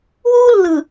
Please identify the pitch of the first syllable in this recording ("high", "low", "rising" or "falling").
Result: high